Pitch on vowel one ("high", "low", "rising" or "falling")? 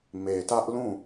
low